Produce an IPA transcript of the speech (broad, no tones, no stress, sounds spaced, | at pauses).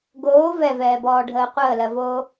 ɡ oː v ɛ v ɛː b ɔː ɖʱ əː qʷ əː l ɜ v oː